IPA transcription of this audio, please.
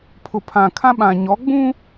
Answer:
pʰ ʊ˨ pʰ ã˨ kʰ ã˦ ɓ ã˨ ɲ ɔ˨˦ ɡ͡b ũ˦

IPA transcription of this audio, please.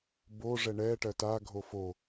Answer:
b o ʐ ɛ ɳ ɛ ʈ ɜ t a ɡʱ o f o

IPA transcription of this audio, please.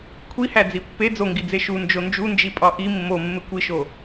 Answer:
kʷʰ i h æ d͡z i pː e d͡z o ŋ ɡ i d͡z e ʃ u n d͡ʒ o n d͡ʒ u n d͡ʒ i pʼ ɒ ʔ i mː o mː e kʷ i ʃ o

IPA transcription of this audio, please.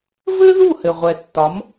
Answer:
v ɘ˥ ð u˥˩ h ɘ˩ ʁʷ ɛ˩ tː ɒ˩˥ m

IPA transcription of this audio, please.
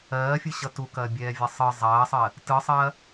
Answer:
ɜː fʲ ɯ ɕ ʌ t u k ɐː bʲ ɛː vʲ ʌ sˤ ɯ zˤ ɐː sˤ ɜ | t ɯ sˤ ɐː

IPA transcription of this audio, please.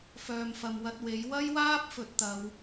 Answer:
f œː˨ m f ɐ˨ m w ɐ˧ t̚ w e˨˥ j w ɐ˥ j w aː˥ p̚ f ɵ˨˥ t̚ t̪ ɐ˨˧ w

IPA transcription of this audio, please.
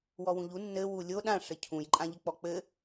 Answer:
w ɔ w ũ ʎ u nː ɘ w u lʲ o ɗ ã ʂ ɘ cʰ ũ j ǃʼ ã ʎ ɘ k͡p ɔ k͡p ɘ

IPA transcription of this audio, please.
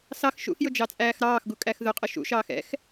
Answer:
s ɑ x ʃ ṵ x j ʊ d͡ʒ ɑ t͡sʼ æː x ɾ ɑː x ɡ u kʼ æ x ð ʊ qʼ ə ʃ ṵ ʃ ɑː x ɛ̰ x

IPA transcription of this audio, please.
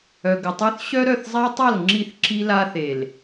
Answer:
œ˨ ɡ ə˨ tˤ y˦ θ ɕ œ˦ ɾ œ˦˨ θ zˤ a˦ tˤ a˦˨ l ŋ͡ǁ i˦˨ θ ǁ i˦ l a˦ θ e˨ l

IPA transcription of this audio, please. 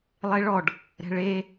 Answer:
lˠ e ɭ ɔ ɖ | ɾ ɛ̤ ɭ e

